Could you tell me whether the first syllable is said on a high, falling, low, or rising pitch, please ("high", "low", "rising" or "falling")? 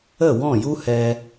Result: falling